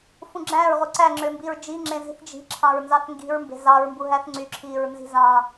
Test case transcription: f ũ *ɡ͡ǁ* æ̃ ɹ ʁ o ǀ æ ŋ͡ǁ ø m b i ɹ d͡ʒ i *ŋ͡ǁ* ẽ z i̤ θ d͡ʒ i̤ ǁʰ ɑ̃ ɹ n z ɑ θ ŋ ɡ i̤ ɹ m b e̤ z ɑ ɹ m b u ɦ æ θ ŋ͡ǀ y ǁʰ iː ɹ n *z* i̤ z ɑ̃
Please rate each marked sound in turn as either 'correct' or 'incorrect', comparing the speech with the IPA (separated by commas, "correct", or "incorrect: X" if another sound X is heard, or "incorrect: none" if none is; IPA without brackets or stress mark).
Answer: correct, correct, correct